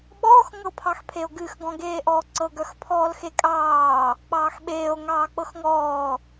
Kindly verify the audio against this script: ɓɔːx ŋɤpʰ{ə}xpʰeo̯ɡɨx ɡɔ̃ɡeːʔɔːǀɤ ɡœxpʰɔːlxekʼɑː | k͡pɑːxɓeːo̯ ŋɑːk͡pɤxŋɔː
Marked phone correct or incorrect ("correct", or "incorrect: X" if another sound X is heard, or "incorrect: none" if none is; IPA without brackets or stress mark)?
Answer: incorrect: ɑ